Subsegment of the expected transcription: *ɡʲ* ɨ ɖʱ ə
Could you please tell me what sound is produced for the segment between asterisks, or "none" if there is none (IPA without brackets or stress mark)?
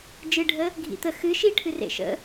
d͡ʒ